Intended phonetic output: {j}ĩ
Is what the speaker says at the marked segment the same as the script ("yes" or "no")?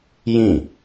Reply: yes